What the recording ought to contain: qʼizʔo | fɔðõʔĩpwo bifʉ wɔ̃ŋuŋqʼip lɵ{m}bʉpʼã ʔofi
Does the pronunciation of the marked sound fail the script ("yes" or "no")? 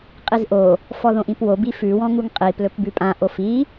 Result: yes